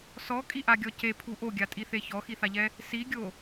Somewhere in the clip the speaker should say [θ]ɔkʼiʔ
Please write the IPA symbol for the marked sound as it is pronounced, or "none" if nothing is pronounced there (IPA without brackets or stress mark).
s